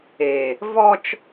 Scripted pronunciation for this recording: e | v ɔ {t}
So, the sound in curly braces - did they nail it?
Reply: no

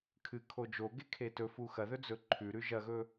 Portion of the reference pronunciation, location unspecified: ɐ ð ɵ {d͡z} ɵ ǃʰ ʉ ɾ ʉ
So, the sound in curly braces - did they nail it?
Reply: yes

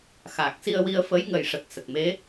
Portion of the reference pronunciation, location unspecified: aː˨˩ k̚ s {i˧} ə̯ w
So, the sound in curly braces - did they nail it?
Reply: yes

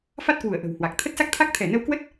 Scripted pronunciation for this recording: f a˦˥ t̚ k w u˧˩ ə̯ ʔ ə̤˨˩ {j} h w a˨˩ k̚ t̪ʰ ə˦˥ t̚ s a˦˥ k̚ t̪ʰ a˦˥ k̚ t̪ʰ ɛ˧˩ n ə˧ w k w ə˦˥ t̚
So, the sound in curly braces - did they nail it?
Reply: no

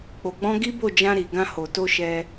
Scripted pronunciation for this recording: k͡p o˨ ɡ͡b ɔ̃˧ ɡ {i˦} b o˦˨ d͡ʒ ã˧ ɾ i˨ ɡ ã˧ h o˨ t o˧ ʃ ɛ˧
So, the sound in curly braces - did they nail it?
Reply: yes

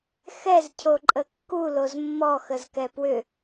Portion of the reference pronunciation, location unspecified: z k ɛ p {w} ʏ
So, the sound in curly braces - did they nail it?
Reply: yes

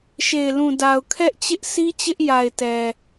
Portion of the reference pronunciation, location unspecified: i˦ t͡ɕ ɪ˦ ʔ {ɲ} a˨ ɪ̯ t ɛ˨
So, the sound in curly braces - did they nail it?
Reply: no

